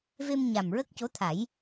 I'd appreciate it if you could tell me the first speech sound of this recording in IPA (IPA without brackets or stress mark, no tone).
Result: v